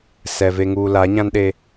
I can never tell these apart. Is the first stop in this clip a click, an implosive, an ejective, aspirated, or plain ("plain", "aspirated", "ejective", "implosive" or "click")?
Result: implosive